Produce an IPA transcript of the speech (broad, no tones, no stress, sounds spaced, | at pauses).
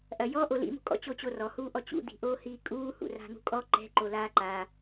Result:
ʔ ɐ j ɔ ʔ o l ḭ m ṳ kʼ ɔ̰ t͡ɕ o t͡ɕ o r ɔ h uː ʔ ɔ t͡ɕ ṵ d̪ i̤ ʔ oː h iː kʼ uː h ṵ r a̤ n ṳ kʼ ɔ ǃ ɛ̤ ǃ o l aː ǃ a